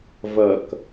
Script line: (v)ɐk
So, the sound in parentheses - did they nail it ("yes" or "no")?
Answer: yes